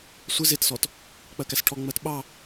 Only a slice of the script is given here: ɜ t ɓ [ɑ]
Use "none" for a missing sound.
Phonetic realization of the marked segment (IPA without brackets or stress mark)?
ɑ